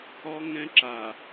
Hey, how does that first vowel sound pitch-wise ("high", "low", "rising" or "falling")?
high